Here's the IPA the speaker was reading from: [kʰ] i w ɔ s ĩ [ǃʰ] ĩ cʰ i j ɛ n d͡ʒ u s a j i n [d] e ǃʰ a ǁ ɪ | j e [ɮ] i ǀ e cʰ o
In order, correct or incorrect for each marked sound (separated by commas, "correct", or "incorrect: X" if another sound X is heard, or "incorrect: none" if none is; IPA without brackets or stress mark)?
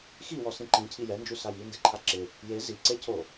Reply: incorrect: x, incorrect: ǃ, correct, incorrect: z